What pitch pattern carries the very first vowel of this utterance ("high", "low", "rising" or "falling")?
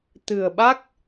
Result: low